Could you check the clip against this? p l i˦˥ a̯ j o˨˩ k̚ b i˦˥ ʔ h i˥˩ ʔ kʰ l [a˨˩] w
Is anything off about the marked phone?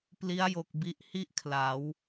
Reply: yes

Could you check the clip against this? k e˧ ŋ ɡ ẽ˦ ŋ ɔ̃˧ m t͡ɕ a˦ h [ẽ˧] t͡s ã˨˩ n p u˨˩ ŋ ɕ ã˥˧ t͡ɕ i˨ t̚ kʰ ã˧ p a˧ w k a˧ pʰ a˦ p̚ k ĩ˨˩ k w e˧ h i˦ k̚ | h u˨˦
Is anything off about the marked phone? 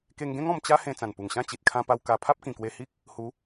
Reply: no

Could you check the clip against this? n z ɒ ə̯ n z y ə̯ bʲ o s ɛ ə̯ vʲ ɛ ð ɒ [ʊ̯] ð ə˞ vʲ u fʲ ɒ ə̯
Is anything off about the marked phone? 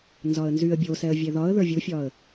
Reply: yes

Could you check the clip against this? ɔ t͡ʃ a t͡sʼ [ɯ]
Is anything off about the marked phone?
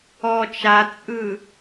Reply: no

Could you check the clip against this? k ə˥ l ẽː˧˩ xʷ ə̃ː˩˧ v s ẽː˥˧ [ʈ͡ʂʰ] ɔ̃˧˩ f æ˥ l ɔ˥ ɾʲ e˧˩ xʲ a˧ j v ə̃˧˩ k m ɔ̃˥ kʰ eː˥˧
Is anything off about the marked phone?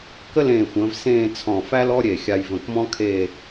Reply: yes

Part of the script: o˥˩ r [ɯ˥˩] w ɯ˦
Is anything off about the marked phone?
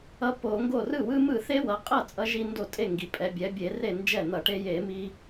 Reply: no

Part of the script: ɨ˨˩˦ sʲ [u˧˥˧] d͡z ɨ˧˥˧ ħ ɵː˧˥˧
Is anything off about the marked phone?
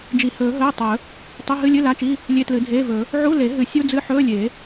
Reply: no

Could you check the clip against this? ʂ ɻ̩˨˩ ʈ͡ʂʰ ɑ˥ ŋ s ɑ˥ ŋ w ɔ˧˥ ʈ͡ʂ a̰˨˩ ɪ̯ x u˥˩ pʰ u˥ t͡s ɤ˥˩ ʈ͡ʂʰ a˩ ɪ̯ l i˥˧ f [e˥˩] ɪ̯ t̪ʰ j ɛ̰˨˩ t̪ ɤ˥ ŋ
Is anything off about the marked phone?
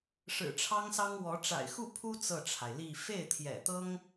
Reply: no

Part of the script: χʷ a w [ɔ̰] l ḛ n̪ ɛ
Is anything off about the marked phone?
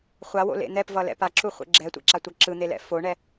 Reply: yes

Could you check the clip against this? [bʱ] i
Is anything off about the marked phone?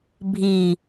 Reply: no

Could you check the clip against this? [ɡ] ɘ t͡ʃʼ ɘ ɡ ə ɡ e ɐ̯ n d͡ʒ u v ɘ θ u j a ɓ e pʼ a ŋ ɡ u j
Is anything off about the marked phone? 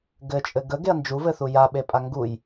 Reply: no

